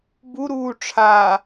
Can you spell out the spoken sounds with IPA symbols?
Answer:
buɾuː ʈ͡ʂʰa

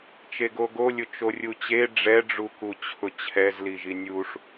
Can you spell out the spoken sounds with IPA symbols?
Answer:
t͡ʃeɡoɡolʲʊ t͡ʃorʲut͡ɕe ɖ͡ʐɛɖ͡ʐu kut͡ɕʰʊt͡ɕʰɛz liʒinʲuʂ

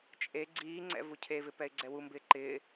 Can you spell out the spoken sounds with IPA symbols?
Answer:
t͡ʃʼe ɡ͡ǀiːŋ͡ǀɛ̰ vucʰevɪ pɛɪ̯ɡ͡ǀɛwumbɪː ǃɪː

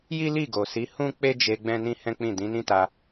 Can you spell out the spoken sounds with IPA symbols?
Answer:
ji˦li˦˨ɡo˨si˨˦ hũ˦ k͡pe˦d͡ʒe˧ ɡ͡bɛ̃˦nĩ˦hɛ̃˦k͡pĩ˦˨ dĩ˨˦nĩ˦ta˧

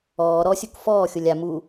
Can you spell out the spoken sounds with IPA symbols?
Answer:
ɔː ɾɔsʲuk fɔːxʲolʲ a mu

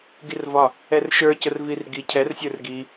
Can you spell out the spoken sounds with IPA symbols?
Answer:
ɡirvɒ | ɛrʃə˞ cərvirɡi cʰɛrsʲə˞r ɡi

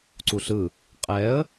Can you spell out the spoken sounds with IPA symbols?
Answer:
ǀuɬɯ | qʼɛə̯

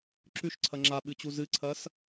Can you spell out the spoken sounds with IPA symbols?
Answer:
ǁʉʃǀʰɐ ŋ͡ǁaɓɨt͡ɕu zɨǀʰɐs

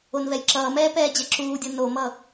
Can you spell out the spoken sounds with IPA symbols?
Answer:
onvɛjǁʌːmɛː pɛːd͡ʑɛǁuːdʲɤ nomʌ

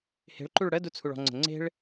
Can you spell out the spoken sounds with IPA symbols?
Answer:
he̤ɭǃuɭ ɽə dut͡sʰuɭɔ̤ŋ͡ǀə̤ ŋ͡ǀe̤ɭ

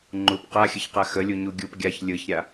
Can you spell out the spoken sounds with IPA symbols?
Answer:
ŋ͡ǃup qaxʲəçqa xəlʲuɲu ɡʲup ɡʲaç lʲɯçɾʲa

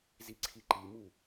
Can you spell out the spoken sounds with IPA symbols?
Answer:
ziǀʰiǃimu

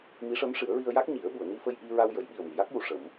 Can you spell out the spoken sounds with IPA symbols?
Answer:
mi˧˥ʂə˧˥mʂɨ˨˩˦ə̯ɹi˧ə̯ ja˦˥k̚ɲi˨˩˦ə̯ɓu˨˩˨ə̯ni˧ fə˧jʔi˧ ɹa˧wjə˨˩˦j ɓi˨˩ə̯mi˨˩˨ja˦˥k̚ju˨˩ ʂə˨˩˦m

